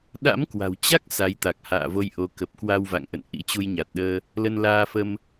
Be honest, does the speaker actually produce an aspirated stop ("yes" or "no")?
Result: no